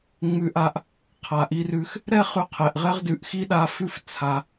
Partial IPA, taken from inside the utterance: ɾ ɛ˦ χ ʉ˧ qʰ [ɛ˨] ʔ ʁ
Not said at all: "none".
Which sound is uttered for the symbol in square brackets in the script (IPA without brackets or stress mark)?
ɛ˨